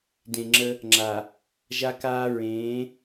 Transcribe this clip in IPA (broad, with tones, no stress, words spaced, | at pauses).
dẽ˨ŋ͡ǁə˦ | ŋ͡ǁa˨ | ʒa˦kaː˦ ɹẽː˨˦